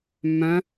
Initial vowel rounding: rounded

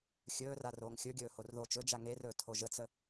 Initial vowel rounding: rounded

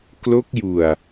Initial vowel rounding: rounded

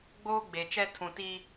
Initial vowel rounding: rounded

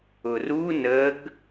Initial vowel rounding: rounded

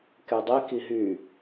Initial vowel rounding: unrounded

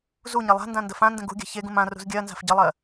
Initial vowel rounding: rounded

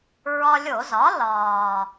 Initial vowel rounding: rounded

